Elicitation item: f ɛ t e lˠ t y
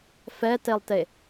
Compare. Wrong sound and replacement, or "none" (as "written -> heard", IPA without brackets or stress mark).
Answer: y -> e